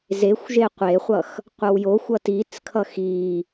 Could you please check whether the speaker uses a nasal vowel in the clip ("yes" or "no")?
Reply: no